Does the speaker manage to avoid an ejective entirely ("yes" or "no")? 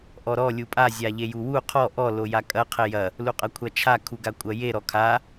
no